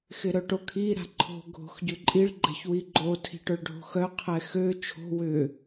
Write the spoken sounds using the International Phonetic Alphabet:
x ɪ ɾ œ ʈ o kʰ i ɾ a̤ ǃʰ o̤ ɡʱ o̤ x ɟ ʏ ǃʼ i ɭ ɡ͡ǃ ɛ̤ ç w i ɡ͡ǃ o tʰ i̤ ʈ œ ɭ ɖʱ o̤ x œ qʰ ɛ x ø t͡ʃʰ o̤ w ʏ

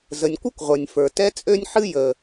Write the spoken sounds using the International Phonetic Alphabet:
z ə˩ nʲ kʷ ɨ˥ kʷ ʁʷ ə˞˩ nʲ f ə˞˩ t ɛ˥ t͡sʼ ø˥ nʲ ħ ɨ˥ j ə˩

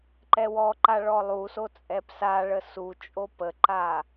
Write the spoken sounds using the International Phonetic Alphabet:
ǃ ɛ w ɔ ǃ a ɭ ɔ lˠ u s o t͡sʼ ɛ p s a ɭ ə s u t͡ʃʼ o p ə ǃ a

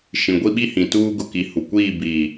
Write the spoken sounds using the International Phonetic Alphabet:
ʃ ĩ˨ ɡʷ i˦ ɓ i˦ h ĩ˨ t uː˦ ɡ ʊ˨ k i˨ h u˨ kʷ iː˦˨ b iː˨

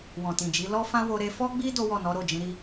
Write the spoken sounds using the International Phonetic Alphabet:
w ɔ̃˨ t ĩ˨ d͡ʒ i˨˦ l ɔ˦ f ã˦ w o˧ ɾ e˧ f ɔ˦ ɡ͡b i˦ d o˦ w ɔ˦˨ n ɔ˨˦ ɾ o˦˨ d͡ʒ ĩ˨˦ ɾ i˦

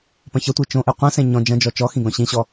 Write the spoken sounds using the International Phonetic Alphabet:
p ɐ̃ ç ɐ tʷ i t͡ʃ õ ʔ e qʷ ɐ̃ s ẽ ɲ ɔ̃ d͡ʒ ɐ̃ d͡ʒ ɔ t͡ʃ ɔ x ĩ ɡ ɔ̃ ɕ ĩ ɕ ɔ

